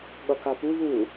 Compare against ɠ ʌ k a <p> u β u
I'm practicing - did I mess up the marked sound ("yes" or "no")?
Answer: no